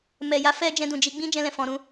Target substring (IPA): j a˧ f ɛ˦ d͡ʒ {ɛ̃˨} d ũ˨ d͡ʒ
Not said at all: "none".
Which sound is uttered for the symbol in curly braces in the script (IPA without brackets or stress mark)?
ɛ̃˧